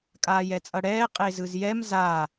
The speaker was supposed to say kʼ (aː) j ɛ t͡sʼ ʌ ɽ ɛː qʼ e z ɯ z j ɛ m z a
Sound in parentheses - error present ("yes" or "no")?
no